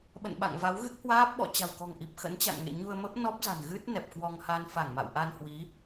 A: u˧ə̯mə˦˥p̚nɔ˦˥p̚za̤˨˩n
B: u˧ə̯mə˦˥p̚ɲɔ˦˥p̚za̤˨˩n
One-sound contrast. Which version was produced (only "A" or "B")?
A